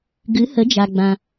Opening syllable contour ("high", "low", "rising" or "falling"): rising